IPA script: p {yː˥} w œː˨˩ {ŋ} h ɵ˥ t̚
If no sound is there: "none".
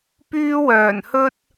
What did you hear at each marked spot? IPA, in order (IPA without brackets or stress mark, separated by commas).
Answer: yː˥, n